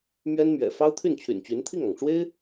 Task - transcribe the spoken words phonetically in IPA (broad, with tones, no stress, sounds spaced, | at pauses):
m ɥ ɛ˥ n m ɥ ɛ̰˨˩ f ɑ˥ ʊ̯ t̪ʰ y˥˩ n t͡ɕʰ y̰˨˩ n t͡ɕ y˧˥ n t̪ʰ i˥˩ ŋ ɑ˩ ŋ ʈ͡ʂ w e˥ ɪ̯